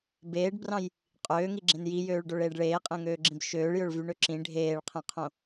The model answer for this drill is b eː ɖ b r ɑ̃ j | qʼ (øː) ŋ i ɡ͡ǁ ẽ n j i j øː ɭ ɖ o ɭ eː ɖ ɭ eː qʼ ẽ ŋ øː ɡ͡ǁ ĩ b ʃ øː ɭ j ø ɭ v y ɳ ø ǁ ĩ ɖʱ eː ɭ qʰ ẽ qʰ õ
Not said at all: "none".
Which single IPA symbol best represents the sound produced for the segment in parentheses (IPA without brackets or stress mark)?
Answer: øː